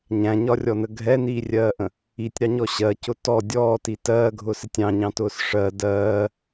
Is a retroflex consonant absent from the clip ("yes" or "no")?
no